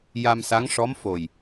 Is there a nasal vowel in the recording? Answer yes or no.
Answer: no